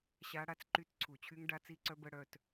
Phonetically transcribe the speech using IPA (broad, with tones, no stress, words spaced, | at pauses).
ɕa˦˥ ɽa˦˥t͡sǃy˦˥tǀʰu˧˩˧t͡ɕʰy˦˥ŋ ɖa˦˥t͡si˦˥ǀœ˦˥bə˦˥ ɽœ˧˥˧t